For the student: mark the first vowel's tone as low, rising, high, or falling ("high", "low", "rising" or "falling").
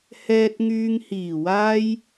low